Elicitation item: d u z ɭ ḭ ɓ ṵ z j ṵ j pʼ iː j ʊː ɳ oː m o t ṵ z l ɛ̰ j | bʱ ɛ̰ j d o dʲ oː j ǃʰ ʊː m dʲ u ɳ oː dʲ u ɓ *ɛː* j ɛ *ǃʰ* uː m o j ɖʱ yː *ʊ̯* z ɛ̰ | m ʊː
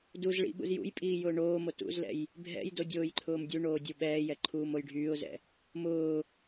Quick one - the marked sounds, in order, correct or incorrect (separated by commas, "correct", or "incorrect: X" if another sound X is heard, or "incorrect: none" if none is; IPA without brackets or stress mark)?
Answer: correct, correct, correct